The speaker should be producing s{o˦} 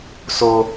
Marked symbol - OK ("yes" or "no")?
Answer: yes